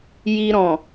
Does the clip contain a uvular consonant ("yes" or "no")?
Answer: no